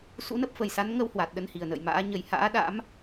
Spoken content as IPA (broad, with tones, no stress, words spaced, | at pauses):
sṵ˧˥nə˦˥p̚fə˨˩jsa˨˦n ŋə˧whwa˨˩t̚ ɗə˧nhi˨˩ə̯nə̰ː˧˨jma̰ː˧˥ ɲə˨˩j ha̰ː˧˥ɗa̰˧˥m